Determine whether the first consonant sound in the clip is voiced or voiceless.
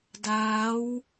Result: voiced